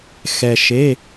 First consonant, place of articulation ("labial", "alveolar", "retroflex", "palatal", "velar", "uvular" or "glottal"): velar